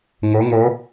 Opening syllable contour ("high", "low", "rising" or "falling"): rising